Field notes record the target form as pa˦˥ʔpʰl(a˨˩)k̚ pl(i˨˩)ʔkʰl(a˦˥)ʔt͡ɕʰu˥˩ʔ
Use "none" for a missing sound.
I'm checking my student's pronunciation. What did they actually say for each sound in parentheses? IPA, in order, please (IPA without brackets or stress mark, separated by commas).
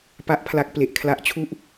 a˦˥, e˨˩, a˦˥